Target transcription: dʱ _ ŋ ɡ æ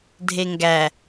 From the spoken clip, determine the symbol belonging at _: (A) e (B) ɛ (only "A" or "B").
A